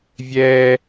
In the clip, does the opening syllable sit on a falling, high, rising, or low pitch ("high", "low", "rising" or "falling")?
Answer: high